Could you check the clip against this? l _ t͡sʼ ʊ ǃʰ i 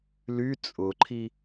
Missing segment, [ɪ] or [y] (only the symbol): y